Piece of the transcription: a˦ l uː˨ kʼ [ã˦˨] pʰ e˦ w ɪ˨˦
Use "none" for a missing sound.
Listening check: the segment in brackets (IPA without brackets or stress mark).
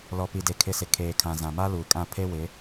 ã˦˨